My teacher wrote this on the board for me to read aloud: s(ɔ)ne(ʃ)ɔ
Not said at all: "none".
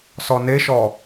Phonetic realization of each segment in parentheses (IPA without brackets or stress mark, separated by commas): ɔ, ʃ